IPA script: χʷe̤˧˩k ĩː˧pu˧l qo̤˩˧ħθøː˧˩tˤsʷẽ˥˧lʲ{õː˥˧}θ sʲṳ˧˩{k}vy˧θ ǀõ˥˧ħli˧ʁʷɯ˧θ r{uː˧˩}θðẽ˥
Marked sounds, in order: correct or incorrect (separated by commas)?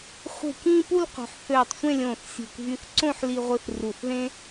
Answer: incorrect, correct, incorrect